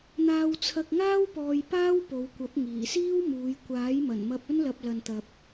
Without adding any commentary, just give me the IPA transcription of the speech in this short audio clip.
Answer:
n̪aː˧wt͡sʰɐ˧k̚ ŋaː˥wpɔː˧j paː˥wpo˨˧wkʷɐ˨˥p̚ ŋiː˨˩siː˥wmuː˨˧j kʷaː˨˥jmɐ˨˩nmɐ˧p̚ ɵ˥nlɐ˧p̚lɐ˨nt̪ɐ˨p̚

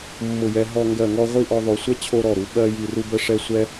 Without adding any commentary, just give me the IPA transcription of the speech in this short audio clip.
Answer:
mːʊ˧˩jɛ˧ ɦɔ˥˧ ŋɡɜ˧˩ŋɔ˥˧ʁʷi˥˧ʔɔ˧ ðˤo˩˧sʷɛ˥ t͡ɕʰo˧ɾɔ˧˩ɾu˩˧ ɓɜ˧ ji˧˩ru˥bə˥ʂɛ˥˧ sʷɛ˥

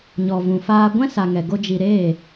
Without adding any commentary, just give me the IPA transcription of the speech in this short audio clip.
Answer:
ɲɔ˧ vũ˨faː˧ɡʷɛ̃˦ sa˧ŋɛ˧ɡo˦ d͡ʒi˧ɾeː˦˨

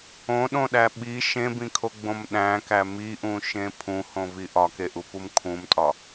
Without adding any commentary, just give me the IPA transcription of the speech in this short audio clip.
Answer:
õɗõɗæ ɓi ʃẽbĩkʰoɡ͡bõm ɗæ̃kæ miʔũʃẽ pʰũhõvi ʔɒkeʔupum kʰũmtʼɒ

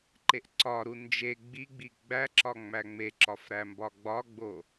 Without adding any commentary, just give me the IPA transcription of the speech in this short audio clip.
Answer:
ǃeʔǀɒɾu nd͡ʒe ɡ͡biɡ͡bi ɡ͡bæǁɒ ŋ͡mæŋ͡meǁɒf ɾæmbɒɡ͡bɒɡ͡bo

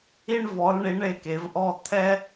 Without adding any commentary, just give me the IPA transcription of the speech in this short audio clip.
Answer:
i˧ɳvɔ˩˧lɳi˩˧ ɳe˧˩ke˩˧vʔɔ˧ t̪ʰɛ˥

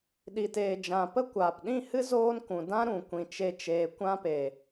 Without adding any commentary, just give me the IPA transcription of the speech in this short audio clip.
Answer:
ɗi˨teː˨d͡ʒã˨pə˦ kʷaː˨p ɗĩ˦˨hɨ˦ zoː˦nkũ˨ dã˦ɾũ˨kʷĩ˨ t͡ʃe˦t͡ʃeː˧ kʷã˦pe˨

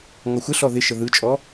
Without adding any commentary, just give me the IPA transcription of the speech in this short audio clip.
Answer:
ŋɔxʷɪɬɔ ðɪ ʃəðɯt͡ʃʼɔ

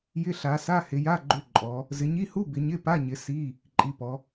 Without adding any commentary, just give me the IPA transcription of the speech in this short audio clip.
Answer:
jɪ˧˥˧ɬa˨˦sa˧˥˧ hɪ˨˦ja˧˥˧ɡ͡ǃʏ˧˥˧ ǃʼɔ˨˦ | zɪ˨˦ɲi˧˥˧hu˧˥˧ bɪ˨˦ɲɪ˧˥˧pa˧˥˧ɲɪ˨˦ si˧˥˧ | ǃʼi˨˦pɔ˨˦

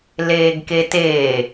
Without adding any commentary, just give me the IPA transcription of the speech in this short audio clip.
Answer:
leːɡketeː

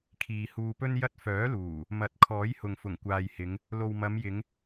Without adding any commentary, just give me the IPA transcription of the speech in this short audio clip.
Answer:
kʰiː˨huː˧pɵ˥n jɐ˥t̚ fœː˨˥luː˨˩ | mɐ˨˥t̚kʰɔː˨˥jhʊ˨ŋ fʊ˨˩ŋkʷaː˨jhɪ˨˧ŋ | lo˨wmɐ˨˧mjɪ˨˧ŋ

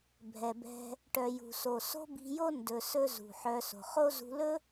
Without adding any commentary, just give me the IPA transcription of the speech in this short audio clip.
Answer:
bʱɛ˨bɛ̤˧ | ʈœ˨jṳ˨so˨ so̤˦bi̤˧jo˦ ndɵ˧sɵ˦ zṳ˨ħœ˧ so̤˨χo˦ zṳ˧lɵ˦

